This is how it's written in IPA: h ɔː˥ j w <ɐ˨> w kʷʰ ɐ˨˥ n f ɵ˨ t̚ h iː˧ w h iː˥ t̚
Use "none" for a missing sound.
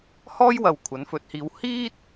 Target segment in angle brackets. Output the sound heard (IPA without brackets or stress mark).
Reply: ɐ˨